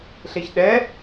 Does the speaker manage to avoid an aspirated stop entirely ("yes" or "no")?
yes